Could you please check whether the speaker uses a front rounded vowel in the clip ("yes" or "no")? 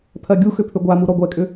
yes